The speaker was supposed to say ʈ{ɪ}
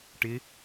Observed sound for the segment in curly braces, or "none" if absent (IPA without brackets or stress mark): ɪ